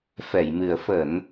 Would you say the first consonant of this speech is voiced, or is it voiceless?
voiceless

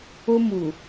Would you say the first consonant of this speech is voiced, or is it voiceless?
voiced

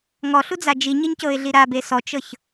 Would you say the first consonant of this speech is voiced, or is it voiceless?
voiced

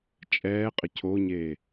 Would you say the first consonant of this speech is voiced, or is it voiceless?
voiceless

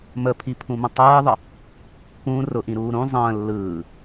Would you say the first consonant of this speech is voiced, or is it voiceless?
voiced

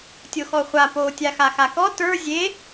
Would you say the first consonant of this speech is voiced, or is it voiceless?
voiceless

